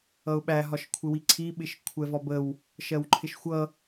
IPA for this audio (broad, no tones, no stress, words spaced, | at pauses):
ʌʊ̯ɓæ ɦɒʃkʷʰɪwiǀʰi ɓɪʃkʷʰɛvɒbəw | ʃɜwǃʰɪʃxʷʌ